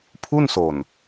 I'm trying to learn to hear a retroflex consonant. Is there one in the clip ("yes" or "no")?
no